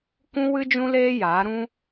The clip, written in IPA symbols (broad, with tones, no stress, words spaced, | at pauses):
kũ˦wɨ˦ d͡ʒũ˦leː˦jaː˨˦ ɾũ˦